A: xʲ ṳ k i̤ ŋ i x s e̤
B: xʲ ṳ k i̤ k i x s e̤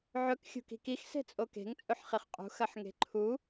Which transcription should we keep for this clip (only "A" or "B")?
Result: B